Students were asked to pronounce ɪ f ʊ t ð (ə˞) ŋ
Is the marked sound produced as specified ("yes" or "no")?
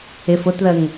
no